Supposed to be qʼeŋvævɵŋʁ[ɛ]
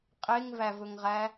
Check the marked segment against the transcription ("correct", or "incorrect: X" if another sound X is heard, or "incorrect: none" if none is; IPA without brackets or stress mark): incorrect: æ